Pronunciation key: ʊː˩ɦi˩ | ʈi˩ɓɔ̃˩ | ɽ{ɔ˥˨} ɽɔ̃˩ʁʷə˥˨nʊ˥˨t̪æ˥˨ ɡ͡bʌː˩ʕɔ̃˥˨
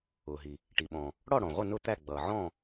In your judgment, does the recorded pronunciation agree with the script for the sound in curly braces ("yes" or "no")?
yes